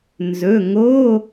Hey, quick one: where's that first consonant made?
tongue tip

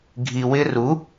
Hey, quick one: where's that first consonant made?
velum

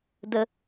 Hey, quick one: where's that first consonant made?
tongue tip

